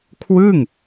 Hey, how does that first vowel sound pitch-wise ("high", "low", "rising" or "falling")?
falling